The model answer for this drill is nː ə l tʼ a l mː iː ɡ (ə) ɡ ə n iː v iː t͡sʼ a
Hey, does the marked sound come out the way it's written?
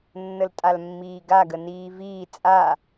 no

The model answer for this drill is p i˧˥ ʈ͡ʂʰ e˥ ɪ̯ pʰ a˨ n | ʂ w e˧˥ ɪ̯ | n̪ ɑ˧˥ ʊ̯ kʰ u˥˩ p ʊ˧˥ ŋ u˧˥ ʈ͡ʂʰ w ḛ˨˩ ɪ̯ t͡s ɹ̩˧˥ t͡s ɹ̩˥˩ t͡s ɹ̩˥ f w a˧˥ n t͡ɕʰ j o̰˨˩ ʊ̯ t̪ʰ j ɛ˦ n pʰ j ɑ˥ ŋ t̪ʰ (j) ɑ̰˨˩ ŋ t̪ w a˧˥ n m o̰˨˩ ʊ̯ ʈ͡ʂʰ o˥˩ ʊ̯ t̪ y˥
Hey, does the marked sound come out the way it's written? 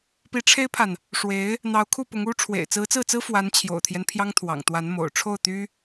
no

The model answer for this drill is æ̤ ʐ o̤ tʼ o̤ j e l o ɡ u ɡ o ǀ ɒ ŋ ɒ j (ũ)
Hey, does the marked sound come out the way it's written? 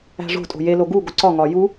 no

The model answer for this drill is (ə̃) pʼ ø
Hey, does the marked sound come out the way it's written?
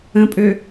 yes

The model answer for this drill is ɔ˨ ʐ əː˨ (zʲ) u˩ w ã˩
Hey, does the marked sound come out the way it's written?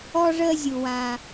yes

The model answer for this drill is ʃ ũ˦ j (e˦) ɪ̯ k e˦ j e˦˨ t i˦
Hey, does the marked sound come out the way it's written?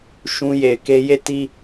no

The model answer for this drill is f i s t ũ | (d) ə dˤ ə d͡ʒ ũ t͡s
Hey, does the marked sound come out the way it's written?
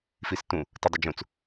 no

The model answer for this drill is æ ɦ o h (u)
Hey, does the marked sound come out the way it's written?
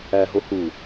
yes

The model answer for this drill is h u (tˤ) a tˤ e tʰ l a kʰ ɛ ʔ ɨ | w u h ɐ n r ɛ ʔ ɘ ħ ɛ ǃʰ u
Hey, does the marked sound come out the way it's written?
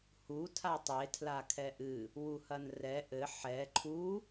no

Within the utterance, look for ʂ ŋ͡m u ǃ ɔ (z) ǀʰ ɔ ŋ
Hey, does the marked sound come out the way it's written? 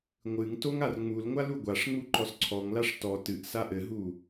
no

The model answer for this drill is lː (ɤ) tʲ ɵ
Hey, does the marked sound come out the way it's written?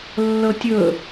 yes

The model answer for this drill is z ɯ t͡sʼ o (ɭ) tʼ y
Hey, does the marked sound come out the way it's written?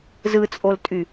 no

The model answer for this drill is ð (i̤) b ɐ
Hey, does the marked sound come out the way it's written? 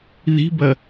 yes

